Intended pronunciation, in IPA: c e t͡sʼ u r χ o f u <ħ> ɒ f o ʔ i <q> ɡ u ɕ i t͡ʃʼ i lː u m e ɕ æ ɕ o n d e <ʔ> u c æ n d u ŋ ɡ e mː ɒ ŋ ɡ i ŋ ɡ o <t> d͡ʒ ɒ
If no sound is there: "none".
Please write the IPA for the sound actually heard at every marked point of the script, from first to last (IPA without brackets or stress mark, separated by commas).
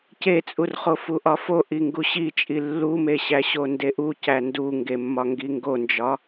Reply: ʔ, ŋ, ʔ, n